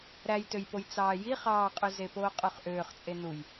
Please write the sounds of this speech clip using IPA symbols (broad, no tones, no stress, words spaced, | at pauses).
ɾæjtøjpoj t͡sɑːji χɑːqʼyzepoː qʼyχʔøːχ t͡sʼenuj